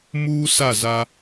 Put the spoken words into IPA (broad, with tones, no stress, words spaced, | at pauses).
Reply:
muː˦sa˦˨ za˦